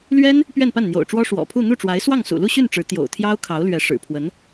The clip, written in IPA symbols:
l ɥ ɛ˥ n | p ɥ ɛ˥˧ n p a˥˩ n n̪ j o̰˨˩ ʊ̯ ʈ͡ʂ w ɔ˥ ʂ w ɔ̰˨˩ pʰ u˥˧ n̪ u˥˩ ʈ͡ʂ w a˧˥ ɪ̯ s w ɑ˥˩ ŋ s ṵ˨˩ l u˥˧ ɕ y˥˩ n ʈ͡ʂ ɻ̩˧˥ t̪ j o̰˨˩ ʊ̯ t̪ʰ j ɑ˥ ʊ̯ kʰ ɑ˧˥ ʊ̯ l ɥ ɛ˧˥ ʂ ɻ̩˨˩ pʰ w ə˧˥ n

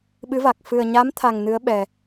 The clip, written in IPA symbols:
ɓ ɨ˧˥ v a˨˩ k̚ f ɨ˨˩ ə̯ ɲ a˧˥ m t̪ʰ a˨˩ ŋ n ɨ˧˥ ə̯ ɓ ɛ˨˩

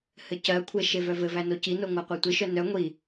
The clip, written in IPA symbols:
h ɘ c ɜ kʷʰ e ʃ e v œ v ɘ v æ n o c i n o ŋʷ æ qʷ e tʷ i ʃ œ n œ ŋʷ i

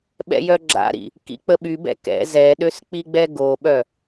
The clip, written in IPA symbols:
ɓ ɛ̰ j œ ɡ͡ǁ a̰ ɾ ḭ | k ḭ k͡p ə ɓ y b ɛ̰ k ɛ̰ z ɛ ɗ ø s k͡p i ɡ͡b ɛ ɡ o ɓ œ

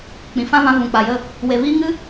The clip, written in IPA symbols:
k͡p ĩ˨ f ã˦ v ã˧ v ũ˨ k͡p a˨ j ə˦˨ | w e˨ v iː˧ ŋ ɨ˦

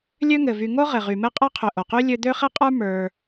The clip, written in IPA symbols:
lʲ ø˦ ŋ ɘ˩ v y˨ ŋ o˥ ʁ ɘ˩ ʁ y˩ m ɘ˦ qʼ ə˞˦ qʰ ø˨ ʔ o˩ q y˥ lʲ ø˦ d̪ ø˥ χ ɘ˥ qʼ ə˞˥ m ə˞˨

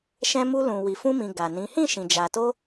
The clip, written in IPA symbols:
ʃ ɛ̃˧ m u˧ l ũ˨ w i˨ f ũ˧ m ĩ˨ ɡ a˨ n ĩ˨˦ h ĩ˦˨ ʃ ĩ˨ d͡ʒ a˨ t o˧

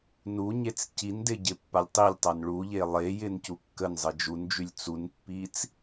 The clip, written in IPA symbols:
n u ɲ e t͡s c i n d ɪ ɟ ɪ pː a lʲ tˤ i lʲ tˤ a n ɭ u ʎ e lˠ e j ɪ n c u kː ə n zˤ ə d͡ʒ u n d͡ʒ y lʲ t͡s u n pː i t͡s

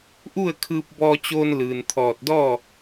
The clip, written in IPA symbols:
ʔ u˥˨ ə̯ kʰ ɯː˧ p̚ b ɔː˧ t͡ɕ oː˧ n l ɯː˩ n t̪ʰ ɔː˧˩ t̚ d ɔː˥˨

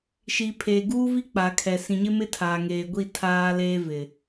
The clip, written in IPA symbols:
ʃ i˨ pʰ eː˨ ɡ uː˦ v i˦ k͡p a˨ kʰ ɛ˨ s ĩ˨ ɲ ɪ˦ m ɪ˦ tʰ aː˨ ŋ eː˨ ɡʷ i˦˨ tʰ aː˦ l eː˦ v ɪ˨

